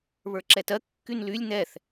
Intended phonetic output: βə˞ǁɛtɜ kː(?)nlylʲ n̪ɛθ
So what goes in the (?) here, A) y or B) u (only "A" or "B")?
A